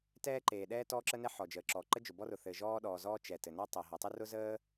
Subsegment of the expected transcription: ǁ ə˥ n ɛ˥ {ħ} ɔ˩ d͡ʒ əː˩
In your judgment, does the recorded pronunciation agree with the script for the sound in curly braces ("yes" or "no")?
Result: yes